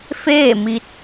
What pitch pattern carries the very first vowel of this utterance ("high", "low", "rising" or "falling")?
falling